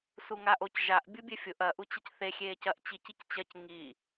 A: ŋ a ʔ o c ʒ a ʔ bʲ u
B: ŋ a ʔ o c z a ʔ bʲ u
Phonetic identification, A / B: A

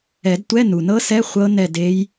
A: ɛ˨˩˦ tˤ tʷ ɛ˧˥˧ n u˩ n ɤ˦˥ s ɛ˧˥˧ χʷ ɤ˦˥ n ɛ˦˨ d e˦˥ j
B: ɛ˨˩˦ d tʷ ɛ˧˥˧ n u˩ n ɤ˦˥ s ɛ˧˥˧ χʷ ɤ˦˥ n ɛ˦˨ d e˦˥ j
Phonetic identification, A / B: B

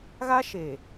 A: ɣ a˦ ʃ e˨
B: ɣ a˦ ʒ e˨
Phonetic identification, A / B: A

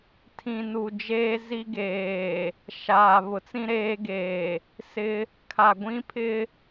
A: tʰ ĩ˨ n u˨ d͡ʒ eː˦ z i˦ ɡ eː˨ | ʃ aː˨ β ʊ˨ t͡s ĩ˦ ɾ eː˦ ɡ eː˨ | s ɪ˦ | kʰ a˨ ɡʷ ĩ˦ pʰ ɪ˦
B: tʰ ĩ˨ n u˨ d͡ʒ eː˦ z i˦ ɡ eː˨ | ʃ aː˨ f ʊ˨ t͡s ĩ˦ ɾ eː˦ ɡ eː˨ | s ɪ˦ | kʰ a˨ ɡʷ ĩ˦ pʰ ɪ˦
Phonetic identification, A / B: A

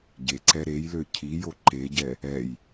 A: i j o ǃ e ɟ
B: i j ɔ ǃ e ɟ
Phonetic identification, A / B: A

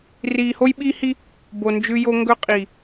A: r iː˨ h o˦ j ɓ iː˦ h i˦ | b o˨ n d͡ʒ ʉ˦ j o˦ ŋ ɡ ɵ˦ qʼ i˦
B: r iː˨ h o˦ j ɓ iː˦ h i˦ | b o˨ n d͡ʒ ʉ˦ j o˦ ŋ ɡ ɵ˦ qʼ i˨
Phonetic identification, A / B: B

